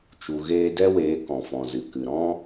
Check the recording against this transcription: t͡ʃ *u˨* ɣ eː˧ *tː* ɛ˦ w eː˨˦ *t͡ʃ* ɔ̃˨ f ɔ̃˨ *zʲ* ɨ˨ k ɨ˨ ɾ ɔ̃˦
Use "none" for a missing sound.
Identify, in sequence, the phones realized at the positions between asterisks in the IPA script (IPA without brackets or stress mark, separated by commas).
u˨, d, k, z